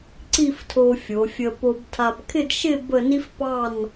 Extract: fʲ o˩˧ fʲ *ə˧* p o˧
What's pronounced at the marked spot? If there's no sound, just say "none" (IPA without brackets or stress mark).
ə˧